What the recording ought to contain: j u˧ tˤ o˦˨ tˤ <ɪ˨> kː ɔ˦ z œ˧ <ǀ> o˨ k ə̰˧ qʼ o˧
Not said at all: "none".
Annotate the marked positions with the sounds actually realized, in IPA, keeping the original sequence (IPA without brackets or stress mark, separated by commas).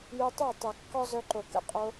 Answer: ɛ˨, ǃ